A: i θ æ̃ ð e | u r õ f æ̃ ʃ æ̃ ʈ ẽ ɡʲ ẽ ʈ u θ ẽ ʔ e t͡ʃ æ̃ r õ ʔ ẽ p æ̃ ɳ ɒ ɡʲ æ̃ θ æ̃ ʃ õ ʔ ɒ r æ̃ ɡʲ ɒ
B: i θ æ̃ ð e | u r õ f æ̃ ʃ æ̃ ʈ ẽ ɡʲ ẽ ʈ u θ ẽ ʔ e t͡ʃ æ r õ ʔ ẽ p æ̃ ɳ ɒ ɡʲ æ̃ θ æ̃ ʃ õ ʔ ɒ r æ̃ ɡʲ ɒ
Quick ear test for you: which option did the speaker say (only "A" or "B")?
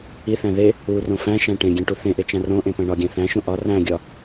A